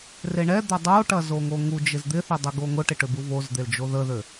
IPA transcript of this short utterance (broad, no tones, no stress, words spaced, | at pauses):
reɳɛd̪a dˤoʈɐ zoŋoŋud͡ʒɪz d̪ɪθø dˤɛɡoŋʊʈɪ ʈøbuvozd̪el d͡ʒoðəðø